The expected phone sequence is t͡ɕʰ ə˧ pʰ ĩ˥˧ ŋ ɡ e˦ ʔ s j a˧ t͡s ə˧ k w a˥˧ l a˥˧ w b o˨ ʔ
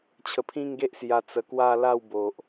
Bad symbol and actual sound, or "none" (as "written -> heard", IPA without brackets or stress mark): none